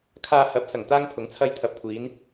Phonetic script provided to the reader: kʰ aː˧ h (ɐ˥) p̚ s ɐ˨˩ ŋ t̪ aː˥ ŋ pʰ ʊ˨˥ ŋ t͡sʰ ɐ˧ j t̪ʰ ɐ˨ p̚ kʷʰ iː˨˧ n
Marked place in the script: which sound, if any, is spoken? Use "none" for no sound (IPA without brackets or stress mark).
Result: ɐ˨˥